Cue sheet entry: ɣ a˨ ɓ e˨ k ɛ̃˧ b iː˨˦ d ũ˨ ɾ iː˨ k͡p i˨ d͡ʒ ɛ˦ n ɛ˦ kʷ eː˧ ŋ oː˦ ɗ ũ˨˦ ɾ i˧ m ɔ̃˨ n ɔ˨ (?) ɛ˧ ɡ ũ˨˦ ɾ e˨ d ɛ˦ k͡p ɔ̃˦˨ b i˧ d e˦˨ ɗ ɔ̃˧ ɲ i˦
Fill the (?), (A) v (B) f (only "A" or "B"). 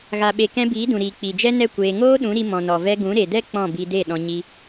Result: A